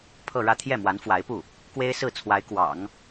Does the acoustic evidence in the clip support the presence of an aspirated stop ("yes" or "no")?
yes